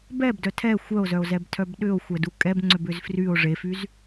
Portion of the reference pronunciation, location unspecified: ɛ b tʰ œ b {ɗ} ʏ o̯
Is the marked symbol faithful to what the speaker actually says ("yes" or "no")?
yes